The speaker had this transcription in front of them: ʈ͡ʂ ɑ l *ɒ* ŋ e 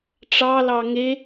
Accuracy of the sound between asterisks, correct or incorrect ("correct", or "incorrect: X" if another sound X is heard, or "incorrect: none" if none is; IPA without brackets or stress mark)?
incorrect: ɑ